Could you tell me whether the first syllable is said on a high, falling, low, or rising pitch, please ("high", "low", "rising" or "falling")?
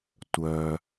low